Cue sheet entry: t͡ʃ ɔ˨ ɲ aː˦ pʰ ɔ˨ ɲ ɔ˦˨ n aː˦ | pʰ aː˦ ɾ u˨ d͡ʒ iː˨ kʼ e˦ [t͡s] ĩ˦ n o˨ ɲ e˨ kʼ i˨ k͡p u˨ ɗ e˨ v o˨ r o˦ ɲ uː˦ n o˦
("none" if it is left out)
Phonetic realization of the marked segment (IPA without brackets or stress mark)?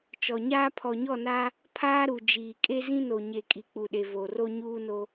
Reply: z